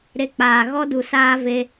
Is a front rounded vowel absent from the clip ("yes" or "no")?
yes